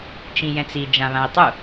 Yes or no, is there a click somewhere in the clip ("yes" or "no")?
no